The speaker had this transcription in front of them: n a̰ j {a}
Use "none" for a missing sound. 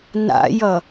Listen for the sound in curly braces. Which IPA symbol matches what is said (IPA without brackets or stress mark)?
ʌ